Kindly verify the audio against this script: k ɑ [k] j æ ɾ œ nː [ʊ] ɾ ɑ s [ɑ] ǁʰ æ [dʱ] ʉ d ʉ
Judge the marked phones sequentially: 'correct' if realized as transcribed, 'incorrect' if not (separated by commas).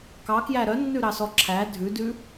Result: correct, incorrect, incorrect, correct